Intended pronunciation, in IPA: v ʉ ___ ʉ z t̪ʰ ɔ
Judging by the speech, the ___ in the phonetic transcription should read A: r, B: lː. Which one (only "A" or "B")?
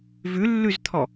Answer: B